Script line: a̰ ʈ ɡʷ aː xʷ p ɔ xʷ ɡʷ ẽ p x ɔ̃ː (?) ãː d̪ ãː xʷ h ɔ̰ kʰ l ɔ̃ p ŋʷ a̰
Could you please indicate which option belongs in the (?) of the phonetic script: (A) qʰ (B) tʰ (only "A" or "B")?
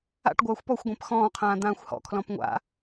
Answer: A